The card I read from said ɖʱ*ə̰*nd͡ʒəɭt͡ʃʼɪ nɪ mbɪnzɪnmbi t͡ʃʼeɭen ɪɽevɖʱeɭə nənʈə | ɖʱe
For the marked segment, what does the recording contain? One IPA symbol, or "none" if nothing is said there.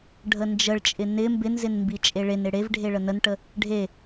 ə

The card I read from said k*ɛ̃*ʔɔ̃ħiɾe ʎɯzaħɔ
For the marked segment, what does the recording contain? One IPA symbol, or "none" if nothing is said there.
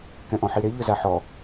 ɛ̃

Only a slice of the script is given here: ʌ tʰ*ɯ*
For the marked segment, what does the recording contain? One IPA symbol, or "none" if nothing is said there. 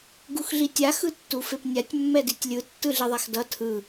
ɯ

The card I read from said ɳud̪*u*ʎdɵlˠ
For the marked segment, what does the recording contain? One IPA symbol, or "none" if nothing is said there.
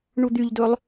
y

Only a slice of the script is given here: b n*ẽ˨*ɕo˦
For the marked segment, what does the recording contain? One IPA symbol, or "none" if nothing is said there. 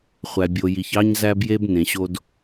ẽ˨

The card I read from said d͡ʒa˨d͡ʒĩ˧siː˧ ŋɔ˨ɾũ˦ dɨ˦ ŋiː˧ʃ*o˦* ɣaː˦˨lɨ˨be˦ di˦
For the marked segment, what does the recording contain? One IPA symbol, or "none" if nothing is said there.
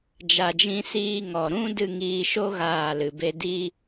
o˦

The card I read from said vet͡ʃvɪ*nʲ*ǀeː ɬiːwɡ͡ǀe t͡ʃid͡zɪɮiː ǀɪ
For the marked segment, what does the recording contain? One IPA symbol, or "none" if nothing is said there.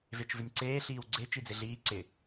nʲ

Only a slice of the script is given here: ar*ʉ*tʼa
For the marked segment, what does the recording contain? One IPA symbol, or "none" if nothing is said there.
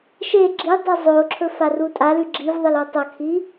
u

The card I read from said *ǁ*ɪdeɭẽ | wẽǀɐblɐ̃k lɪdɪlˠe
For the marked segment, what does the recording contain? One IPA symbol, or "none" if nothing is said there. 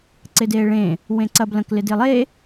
ǀ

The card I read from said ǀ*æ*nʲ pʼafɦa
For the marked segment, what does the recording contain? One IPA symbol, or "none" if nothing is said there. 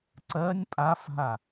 ɜ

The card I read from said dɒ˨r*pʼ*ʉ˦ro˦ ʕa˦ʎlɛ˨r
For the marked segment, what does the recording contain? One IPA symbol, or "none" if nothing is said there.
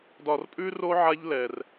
pʼ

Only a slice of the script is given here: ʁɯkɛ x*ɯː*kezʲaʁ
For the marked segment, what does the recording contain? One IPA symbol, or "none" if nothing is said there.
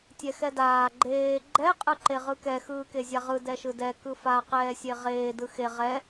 ɯː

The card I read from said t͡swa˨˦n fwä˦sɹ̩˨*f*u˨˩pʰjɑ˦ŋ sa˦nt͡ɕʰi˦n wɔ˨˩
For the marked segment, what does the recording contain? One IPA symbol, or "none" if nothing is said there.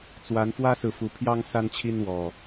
f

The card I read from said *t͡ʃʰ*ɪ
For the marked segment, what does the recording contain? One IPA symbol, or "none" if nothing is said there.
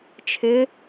t͡ʃʰ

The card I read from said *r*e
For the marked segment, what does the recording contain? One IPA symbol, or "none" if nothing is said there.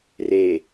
r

